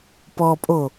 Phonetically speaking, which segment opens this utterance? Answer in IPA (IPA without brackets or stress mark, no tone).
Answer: p